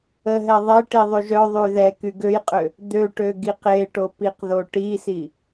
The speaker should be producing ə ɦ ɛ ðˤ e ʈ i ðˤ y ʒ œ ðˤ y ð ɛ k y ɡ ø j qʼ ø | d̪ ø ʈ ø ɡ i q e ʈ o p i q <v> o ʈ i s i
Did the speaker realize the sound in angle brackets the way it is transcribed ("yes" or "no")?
no